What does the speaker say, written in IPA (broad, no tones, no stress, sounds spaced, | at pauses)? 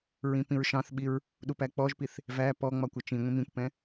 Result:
ɹ ĩ p ĩ ɹ ʃ ɑ̃ θ ɓ i ɹ | ɗ u p æ k͡p ɔ ʒ p i θ | v æ p ɔ ŋ͡m ɒ kʷ ʌ t͡ʃ ĩ ŋʷ ĩ m ĩ kʷ p ɛ̃